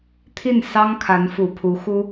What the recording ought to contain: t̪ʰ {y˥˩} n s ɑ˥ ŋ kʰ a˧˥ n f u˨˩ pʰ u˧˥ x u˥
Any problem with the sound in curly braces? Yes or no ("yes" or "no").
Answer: yes